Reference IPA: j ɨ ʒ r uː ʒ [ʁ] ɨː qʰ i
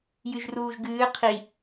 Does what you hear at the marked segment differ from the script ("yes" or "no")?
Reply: yes